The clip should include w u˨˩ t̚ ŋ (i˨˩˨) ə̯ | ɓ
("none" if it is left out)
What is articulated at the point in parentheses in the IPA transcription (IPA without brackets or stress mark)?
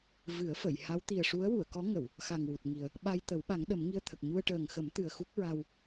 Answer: i˨˩